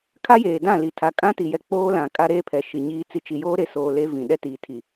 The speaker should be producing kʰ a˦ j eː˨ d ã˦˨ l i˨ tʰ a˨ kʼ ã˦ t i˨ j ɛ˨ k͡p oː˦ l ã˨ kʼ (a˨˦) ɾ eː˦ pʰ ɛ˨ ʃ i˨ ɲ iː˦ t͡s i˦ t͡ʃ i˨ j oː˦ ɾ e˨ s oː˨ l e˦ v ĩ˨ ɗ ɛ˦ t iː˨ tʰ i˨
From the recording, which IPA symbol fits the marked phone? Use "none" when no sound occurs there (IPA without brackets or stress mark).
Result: a˦